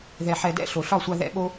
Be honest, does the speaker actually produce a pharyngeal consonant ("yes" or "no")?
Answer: yes